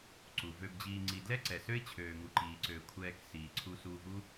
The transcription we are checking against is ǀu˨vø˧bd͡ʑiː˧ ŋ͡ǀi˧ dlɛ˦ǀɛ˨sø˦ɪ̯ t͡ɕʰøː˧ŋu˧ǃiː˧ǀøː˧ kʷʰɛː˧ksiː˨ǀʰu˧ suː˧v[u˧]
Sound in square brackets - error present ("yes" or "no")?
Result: yes